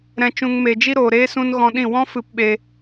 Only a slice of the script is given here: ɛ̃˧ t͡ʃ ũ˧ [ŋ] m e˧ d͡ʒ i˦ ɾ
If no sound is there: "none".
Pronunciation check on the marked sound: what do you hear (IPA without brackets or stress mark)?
ŋ